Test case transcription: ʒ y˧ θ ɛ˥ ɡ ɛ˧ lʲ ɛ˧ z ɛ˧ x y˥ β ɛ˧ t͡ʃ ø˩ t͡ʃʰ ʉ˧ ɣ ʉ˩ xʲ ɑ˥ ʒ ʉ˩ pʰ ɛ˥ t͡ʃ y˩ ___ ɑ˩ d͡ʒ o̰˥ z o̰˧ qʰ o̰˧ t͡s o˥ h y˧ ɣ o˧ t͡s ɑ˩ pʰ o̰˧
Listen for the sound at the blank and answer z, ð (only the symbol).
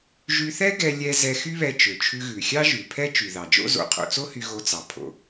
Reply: ð